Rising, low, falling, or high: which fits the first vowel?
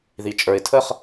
low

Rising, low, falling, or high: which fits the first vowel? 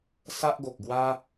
high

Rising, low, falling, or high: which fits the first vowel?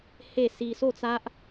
falling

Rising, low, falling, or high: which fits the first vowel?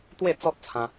falling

